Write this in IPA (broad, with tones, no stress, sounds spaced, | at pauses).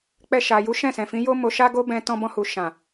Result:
k͡p ɛ˧ ʃ a˨ j u˨˦ ʃ ɛ̃˦˨ s ɛ̃˨ f ĩ˨˦ j o˦ m o˧ ʃ a˦ ɡ o˦ b ɛ̃˧ t ɔ̃˧ b ɔ̃˧ h u˨ ʃ ã˨